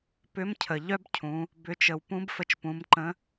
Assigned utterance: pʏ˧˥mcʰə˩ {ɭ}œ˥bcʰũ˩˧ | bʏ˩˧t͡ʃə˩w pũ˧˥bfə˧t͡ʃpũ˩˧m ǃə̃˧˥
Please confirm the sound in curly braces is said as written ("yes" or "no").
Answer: no